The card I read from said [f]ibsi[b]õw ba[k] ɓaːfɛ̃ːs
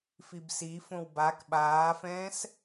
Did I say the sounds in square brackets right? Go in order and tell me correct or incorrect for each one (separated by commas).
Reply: correct, incorrect, correct